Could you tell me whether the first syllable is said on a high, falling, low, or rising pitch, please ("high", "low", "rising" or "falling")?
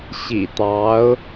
low